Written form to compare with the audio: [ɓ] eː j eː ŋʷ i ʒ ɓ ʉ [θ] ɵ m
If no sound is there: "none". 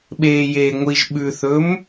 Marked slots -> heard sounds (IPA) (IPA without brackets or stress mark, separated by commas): ɓ, θ